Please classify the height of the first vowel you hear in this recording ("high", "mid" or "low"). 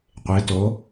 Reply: mid